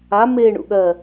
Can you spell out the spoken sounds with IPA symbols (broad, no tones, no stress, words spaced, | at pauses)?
a me ɳṵɠɜ